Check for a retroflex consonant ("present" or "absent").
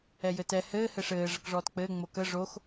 present